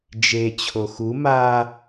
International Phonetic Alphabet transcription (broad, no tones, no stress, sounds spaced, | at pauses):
d͡ʒ e t͡ɕʰ o x u m a